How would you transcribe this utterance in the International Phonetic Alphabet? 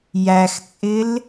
j æ x t͡sʼ ɪ l

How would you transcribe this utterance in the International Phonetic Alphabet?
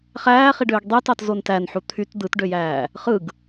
χ æː χ i ɖ øː ɡ dˤ e t ɑ t z o n t æ n ħ u t̪ʰ y t d̪ ɯ t ɖ ø j æː | χ ɯ ɡ

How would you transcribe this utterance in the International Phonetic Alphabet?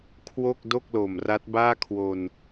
kʰ w o˥˩ k̚ d o˥˩ k̚ l o˨˩ m r a˦˥ t̚ b aː˥˩ kʰ w o˧ n

